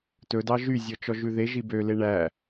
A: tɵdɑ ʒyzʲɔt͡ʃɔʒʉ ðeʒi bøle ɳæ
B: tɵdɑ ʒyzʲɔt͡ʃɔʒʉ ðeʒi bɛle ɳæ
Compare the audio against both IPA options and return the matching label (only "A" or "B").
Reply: A